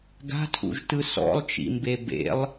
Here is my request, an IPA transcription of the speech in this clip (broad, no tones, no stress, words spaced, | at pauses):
ɡa̤tʰṵʒtɯ sɔ̰lˠt͡ʃḭmbe bḛlˠ